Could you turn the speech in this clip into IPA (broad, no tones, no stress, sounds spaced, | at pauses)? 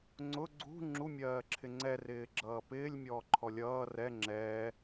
ŋ͡ǀ ʊ ɡ͡ǀ ṳ ŋ͡ǁ u mʲ ɜː ǁʰ ɪ ŋ͡ǀ ɛ r ɪː ɡ͡ǁ ʌː p ɪː lʲ mʲ ɔː ǃʰ ɔ lʲ ʌː r ɛ ŋ͡ǁ ɛː